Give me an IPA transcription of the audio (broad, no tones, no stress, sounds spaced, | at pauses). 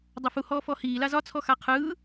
dˤ ɐ f u h ɔː f ɔ h iː l a z ɒ t͡sʰ ɔ x a qʰ ɯː